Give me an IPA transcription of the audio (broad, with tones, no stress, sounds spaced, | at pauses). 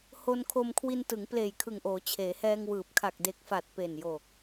h o˧ n kʰ o˧ m kʰ w i˧ n t ɯ˩˦ ŋ p l eː˨˩ j kʰ ɯ˨˩ ŋ ʔ oː˩˦ t͡ɕʰ eː˩˦ h ɛː˧ ŋ w ɯː˨˩ p̚ kʰ a˨˩ k̚ d e˨˩ k̚ f a˨˩ t̚ p e˨˩ n j o˨˩ k̚